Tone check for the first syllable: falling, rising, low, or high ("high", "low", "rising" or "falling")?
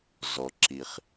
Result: low